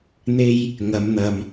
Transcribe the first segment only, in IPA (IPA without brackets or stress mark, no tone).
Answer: n̪